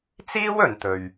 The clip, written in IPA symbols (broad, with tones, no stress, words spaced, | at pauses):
t͡siː˥wɵ˨nt̪ɵ˨ɥ